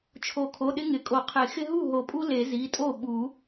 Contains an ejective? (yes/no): yes